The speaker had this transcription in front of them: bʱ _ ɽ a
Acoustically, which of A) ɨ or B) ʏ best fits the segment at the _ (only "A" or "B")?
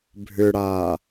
B